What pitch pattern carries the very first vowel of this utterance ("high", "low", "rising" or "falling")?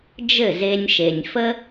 falling